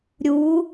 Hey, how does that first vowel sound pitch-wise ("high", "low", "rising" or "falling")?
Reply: rising